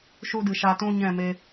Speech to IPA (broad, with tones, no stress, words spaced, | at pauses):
ʃu˧dɨ˨ ʃa˧tũ˦ɲɛ̃˦˨me˧